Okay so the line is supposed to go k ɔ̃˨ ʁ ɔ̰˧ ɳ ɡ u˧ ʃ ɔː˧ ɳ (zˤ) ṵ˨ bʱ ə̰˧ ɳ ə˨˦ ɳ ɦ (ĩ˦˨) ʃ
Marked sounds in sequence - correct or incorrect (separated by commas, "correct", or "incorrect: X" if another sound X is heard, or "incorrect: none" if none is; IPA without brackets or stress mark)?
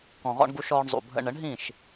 correct, correct